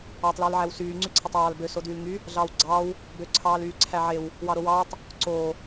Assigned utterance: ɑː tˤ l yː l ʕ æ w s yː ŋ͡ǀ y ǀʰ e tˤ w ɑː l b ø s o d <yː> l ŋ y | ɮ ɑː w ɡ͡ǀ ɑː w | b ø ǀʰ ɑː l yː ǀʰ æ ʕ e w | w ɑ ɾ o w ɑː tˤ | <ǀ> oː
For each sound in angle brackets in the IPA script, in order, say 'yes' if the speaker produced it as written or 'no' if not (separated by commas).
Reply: yes, yes